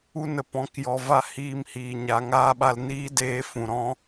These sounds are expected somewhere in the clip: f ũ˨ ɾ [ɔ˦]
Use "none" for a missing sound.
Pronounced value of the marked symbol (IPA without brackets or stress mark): ɔ̃˦